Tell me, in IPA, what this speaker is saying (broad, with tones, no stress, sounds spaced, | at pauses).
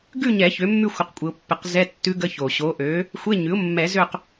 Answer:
ɡ ʉ˦˨ ɲ ɛ˨˩˦ ç ø˩˥ mː ʉ˦˨ xʷ ə˩˥ q kʷʼ ɪ˨˩˦ ʊ̯ pː ɪ˨˩˦ q z ɛ˧˥˧ tː ʉ˧˥ ɡ ə˧˥˧ ç o˩ ɕ o˩˥ ʔ ø˩˥ | xʷ e˧˥˧ ɲ ʉ˩˥ ʊ̯ mː ɛ˨˩˦ z ø˦˨ q